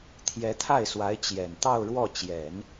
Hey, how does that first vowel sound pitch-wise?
rising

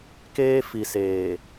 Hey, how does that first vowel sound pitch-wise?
high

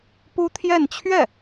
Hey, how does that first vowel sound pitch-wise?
high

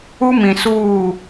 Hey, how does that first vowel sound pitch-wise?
high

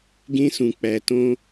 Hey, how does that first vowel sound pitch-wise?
high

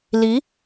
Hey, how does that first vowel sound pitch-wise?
rising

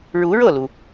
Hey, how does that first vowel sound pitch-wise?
rising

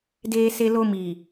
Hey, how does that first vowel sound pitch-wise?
high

